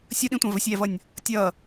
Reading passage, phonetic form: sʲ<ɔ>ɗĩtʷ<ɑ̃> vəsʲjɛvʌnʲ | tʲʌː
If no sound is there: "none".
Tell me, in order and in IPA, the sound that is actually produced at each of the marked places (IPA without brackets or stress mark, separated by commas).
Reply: ʌ, ɑ̃